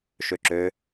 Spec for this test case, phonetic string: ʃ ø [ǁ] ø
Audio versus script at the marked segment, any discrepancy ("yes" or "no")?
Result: no